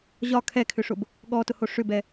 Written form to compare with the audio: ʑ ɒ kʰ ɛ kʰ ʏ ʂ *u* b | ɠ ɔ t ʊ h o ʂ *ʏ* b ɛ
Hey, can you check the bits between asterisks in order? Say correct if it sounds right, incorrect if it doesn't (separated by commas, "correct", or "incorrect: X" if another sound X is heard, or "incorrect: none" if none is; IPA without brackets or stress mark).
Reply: incorrect: ʊ, correct